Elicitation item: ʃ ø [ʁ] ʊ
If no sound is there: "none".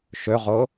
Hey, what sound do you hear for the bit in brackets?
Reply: ʁ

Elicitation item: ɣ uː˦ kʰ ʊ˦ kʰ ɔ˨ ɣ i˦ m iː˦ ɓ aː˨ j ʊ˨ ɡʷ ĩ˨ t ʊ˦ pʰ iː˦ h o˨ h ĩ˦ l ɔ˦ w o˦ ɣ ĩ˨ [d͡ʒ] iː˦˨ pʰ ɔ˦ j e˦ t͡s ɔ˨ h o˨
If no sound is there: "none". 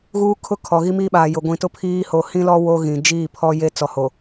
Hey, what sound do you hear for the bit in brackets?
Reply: d͡ʒ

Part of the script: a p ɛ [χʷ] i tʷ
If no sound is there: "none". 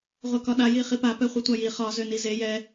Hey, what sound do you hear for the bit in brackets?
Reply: χʷ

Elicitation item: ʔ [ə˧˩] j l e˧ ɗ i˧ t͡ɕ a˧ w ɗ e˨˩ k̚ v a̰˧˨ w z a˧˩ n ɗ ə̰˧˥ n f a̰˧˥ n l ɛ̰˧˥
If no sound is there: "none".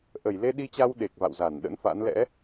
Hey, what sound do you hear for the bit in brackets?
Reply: ə˧˩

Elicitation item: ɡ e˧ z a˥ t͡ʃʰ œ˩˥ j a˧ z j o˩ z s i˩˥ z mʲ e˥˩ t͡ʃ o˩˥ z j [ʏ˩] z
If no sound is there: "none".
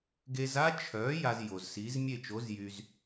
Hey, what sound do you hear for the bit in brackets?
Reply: y˩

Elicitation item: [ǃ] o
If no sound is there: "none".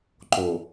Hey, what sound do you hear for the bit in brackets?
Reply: ǃ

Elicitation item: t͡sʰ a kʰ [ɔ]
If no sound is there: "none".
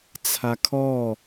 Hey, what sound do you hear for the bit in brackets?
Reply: ɔ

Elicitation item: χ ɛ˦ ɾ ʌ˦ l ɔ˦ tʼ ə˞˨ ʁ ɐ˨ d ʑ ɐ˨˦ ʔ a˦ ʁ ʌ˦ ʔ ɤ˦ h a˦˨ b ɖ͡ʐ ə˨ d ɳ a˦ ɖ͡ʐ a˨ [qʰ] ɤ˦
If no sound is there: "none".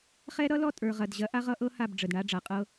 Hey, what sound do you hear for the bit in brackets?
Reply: qʼ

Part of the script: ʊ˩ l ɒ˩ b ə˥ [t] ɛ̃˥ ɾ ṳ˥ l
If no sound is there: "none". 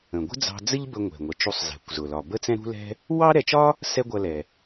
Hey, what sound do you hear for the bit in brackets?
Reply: t͡s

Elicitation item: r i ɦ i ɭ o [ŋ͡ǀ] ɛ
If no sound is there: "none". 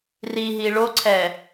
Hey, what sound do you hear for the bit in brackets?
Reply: ǀʰ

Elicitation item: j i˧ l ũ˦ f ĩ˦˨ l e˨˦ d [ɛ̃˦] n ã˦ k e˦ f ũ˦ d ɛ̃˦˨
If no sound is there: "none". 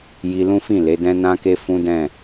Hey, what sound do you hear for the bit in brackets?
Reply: ɛ̃˦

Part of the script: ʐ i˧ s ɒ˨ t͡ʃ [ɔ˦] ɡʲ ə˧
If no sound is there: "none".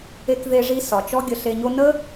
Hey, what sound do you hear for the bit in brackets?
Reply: ɔ˦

